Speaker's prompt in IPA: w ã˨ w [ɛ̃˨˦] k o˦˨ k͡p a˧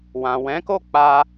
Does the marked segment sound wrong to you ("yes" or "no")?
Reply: no